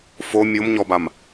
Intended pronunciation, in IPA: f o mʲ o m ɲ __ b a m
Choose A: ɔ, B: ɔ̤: A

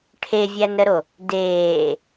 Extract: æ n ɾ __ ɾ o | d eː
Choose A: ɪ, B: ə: B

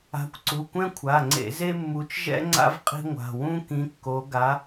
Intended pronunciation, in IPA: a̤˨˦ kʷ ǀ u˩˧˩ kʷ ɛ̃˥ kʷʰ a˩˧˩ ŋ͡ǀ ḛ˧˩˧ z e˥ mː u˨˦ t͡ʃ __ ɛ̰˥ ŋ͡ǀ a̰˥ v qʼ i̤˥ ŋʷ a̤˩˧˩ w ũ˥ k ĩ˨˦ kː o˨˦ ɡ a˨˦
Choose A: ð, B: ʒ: B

